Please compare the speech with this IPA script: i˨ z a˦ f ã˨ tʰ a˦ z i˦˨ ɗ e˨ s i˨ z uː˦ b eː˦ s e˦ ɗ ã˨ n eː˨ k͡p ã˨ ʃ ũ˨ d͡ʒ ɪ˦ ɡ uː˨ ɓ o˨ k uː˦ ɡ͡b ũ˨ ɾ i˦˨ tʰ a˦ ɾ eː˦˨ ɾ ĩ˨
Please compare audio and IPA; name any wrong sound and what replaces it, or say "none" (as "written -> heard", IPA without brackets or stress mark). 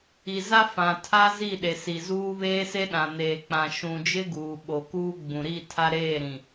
b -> β